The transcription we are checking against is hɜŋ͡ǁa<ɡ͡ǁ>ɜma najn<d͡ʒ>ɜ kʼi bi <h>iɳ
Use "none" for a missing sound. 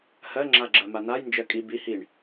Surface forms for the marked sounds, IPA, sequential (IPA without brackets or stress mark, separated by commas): ɡ͡ǁ, d͡ʒ, h